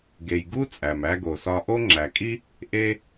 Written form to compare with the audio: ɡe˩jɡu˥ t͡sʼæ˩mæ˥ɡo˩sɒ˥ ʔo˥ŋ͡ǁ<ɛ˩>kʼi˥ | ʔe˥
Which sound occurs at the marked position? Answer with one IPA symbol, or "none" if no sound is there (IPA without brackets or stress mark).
æ˩